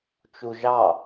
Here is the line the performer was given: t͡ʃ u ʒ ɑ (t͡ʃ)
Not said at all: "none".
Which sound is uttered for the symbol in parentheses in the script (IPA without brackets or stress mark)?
none